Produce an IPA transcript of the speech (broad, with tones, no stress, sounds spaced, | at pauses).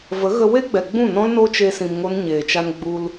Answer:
v ə˨˦ ɣ ə˧ w e˦ ɡ͡b ɛ˨ ɡ͡b ũ˦˨ n ɔ̃˦ l n o˦ t͡ʃ e˦ s ĩ˧ m ŋ o˦ n ɲ eː˨ t͡ʃ a˧ n ɡ͡b u˧ l